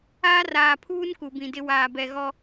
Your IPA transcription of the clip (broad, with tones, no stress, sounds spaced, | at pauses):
aː˦ r aː˨ pʰ uː˦ n k u˨ b ĩ˨ d ɪ˦ w aː˨ b ɛ˨ ɣ ɔ˦